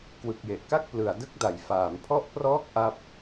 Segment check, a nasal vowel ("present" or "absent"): absent